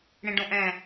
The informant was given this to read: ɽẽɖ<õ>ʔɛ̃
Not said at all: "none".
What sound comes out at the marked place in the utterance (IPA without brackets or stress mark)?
õ